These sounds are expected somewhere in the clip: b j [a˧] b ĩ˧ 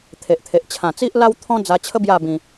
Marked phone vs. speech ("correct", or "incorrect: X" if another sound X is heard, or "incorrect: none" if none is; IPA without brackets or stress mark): incorrect: a˥˧